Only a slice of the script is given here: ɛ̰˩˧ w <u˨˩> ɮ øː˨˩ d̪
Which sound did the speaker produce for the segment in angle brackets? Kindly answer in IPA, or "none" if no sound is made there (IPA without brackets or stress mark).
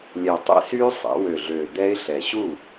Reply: ø˨˩